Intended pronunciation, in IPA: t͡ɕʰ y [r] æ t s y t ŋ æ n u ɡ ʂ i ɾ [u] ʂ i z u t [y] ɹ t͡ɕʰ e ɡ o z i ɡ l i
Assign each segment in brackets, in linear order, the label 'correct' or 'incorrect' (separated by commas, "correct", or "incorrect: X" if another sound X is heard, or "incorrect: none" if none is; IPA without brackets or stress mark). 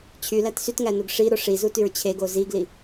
incorrect: l, incorrect: o, correct